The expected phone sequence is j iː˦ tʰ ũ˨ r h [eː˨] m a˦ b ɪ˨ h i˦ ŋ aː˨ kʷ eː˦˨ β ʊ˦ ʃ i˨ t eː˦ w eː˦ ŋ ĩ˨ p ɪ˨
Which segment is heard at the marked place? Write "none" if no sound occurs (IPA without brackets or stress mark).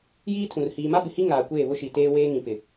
iː˨